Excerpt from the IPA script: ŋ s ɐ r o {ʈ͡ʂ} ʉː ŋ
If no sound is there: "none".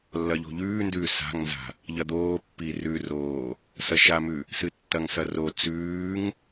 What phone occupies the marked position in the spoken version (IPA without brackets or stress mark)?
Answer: t͡s